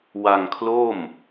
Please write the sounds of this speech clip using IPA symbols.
wa˧ŋkʰlo˥˩m

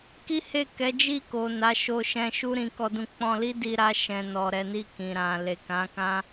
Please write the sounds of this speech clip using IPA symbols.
ki˦he˦˨kɛ˨˦ d͡ʒi˦˨ko˨ na˨˦ʃo˧ʃɛ̃˧ʃu˦ ɾĩ˧kɔ˧dũ˧ k͡pɔ̃˧li˦di˧ ɾa˧ʃɛ̃˨nɔ˨ ɾɛ˨˦ni˦˨kĩ˨ ɾã˨ le˨kã˨˦kã˦

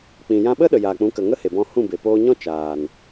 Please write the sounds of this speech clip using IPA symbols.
k͡pĩ˨jã˧ɓə˦ ɗə˨jaː˨k͡pũ˨˦kə˨ ŋə˦he˨bɔ̃˧hũ˦˨ be˨poː˧ɲɔ̃˦ t͡ʃaː˨n

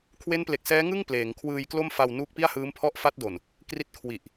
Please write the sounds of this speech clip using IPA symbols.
kʰwe˦˥nple˨˩k̚sɛː˦˥ŋɯ˥˩ŋ pleː˩˦ŋkʰwɯː˧jklo˥˩m fa˧w nuː˦˥k̚pi˥˩a̯hɯː˦˥mpʰɔ˥˩ʔ fa˦˥t̚do˨˩n | kri˦˥t̚kʰwi˨˩ʔ

